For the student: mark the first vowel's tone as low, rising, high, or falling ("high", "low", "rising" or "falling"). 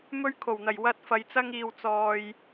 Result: high